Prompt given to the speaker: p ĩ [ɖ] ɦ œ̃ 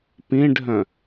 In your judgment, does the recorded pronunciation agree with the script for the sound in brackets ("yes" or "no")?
yes